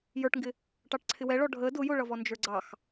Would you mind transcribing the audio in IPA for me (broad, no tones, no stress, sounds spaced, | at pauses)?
j ə˞ ʈ ŋ ɡ ɪ | ʈ ɑ ʈ ǀʰ ɪ w ɛ ɭ ɔ ɖʱ ə d ʊ j ʊ ɭ ʌ v ɔ n d͡ʒ ə˞ ɡ͡ǀ ɑ x